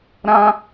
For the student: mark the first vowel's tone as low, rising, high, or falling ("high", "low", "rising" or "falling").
high